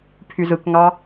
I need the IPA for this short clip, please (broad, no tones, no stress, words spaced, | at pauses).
pʰyzɯk ŋɑ